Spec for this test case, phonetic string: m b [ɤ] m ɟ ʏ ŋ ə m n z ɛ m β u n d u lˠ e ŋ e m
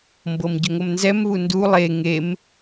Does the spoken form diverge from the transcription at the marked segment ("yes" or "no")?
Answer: no